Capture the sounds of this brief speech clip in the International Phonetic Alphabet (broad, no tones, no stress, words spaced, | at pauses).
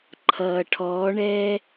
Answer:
ǃʰʌ ʈʰɔɳɛ